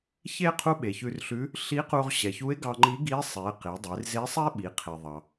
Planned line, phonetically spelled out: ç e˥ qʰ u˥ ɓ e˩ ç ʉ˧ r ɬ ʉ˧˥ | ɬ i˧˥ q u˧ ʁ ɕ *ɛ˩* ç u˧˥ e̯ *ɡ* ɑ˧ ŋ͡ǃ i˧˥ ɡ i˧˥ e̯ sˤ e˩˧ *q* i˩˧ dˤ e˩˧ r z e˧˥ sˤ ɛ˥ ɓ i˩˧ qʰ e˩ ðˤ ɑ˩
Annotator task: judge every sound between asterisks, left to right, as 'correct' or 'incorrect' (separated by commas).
correct, correct, correct